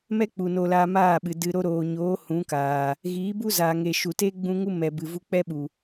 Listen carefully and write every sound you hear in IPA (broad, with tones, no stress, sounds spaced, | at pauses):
m ɛ˦ k͡p u˨ n o˧ l aː˧ m aː˦˨ ɓ ɨ˨ d ɨ˨ ɾ o˧ ɾ oː˨ ɲ oː˨˦ h ũ˨˦ k aː˨ | ɣ iː˨˦ b u˦ z aː˨ ŋ e˨ ʃ u˨ t e˦ ɡ͡b ũ˧ ŋ u˦ m ɛ˨ b ɨ˨ v u˧ k͡p ɛ˦ ɓ u˨